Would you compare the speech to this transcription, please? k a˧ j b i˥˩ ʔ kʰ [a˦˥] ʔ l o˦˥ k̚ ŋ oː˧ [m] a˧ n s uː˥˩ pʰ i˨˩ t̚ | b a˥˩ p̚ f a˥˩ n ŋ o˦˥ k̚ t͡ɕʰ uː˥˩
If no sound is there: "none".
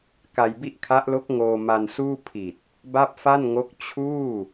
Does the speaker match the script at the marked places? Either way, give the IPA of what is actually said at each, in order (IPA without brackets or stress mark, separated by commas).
a˦˥, m